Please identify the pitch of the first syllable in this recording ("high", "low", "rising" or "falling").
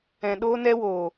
low